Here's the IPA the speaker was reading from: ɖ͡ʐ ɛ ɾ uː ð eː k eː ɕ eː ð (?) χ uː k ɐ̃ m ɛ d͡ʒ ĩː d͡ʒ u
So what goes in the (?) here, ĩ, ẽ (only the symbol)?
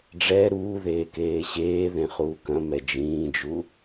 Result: ẽ